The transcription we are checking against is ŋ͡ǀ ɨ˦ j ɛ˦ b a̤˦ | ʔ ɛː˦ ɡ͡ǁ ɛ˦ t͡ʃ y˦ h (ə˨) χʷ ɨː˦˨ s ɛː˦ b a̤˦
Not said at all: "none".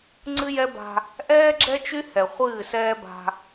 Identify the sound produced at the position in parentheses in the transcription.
ɛ˨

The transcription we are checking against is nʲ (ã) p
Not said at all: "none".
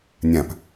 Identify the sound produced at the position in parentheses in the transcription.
ã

